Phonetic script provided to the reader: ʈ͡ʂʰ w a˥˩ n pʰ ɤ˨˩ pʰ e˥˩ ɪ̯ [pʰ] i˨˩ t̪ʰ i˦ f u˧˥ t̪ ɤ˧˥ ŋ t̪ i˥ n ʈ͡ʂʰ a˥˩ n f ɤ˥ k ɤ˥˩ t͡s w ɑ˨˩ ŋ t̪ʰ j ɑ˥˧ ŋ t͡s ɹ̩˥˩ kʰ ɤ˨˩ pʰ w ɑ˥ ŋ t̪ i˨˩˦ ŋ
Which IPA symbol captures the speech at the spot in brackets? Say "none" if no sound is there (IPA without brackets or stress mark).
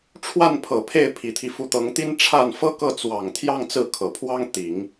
pʰ